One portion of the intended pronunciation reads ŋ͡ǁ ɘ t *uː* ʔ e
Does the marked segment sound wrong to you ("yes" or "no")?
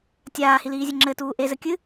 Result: no